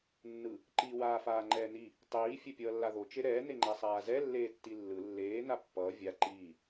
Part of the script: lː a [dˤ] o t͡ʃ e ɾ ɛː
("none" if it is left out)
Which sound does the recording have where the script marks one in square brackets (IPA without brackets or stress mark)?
ð